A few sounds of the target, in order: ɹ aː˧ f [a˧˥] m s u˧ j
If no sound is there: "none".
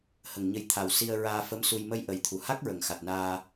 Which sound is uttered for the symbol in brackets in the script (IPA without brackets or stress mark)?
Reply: ə˧˥